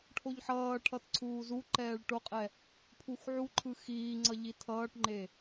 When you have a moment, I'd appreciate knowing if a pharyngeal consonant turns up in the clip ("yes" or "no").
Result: yes